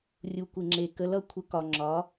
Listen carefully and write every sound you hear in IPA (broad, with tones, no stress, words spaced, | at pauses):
rʲu˩kʷe˩ŋ͡ǁe˩ kə˩˧lʌ˩˧kʷʰə˩˧ kɒ˩ŋ͡ǁɒ˩˧